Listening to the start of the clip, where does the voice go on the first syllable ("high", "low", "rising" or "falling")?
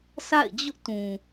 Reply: falling